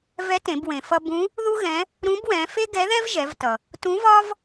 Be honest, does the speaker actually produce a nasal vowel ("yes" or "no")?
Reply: yes